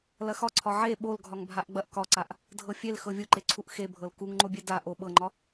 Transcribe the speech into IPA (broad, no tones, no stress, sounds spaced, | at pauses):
l ɐ x ɒ ǀʰ ɒ ʕ e ɓ o l ɡʱ ɒ ŋ bʱ a ʔ ɡ͡b ɐ ʔ k ɒ ǀ a ʔ | dʱ ɤ fʲ e l x ɤ vʲ u ǃ e ǀʰ u ʔ x e bʱ ɤ l k u ŋ ŋ͡ǃ o bʲ e d a ʔ o ɓ ɤ ŋ͡ǃ ɒ